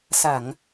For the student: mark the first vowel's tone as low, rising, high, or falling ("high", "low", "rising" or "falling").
low